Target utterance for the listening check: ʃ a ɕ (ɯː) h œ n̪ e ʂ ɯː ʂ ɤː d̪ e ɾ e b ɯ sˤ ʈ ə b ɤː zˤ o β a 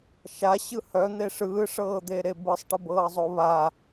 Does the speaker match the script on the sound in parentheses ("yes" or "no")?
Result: no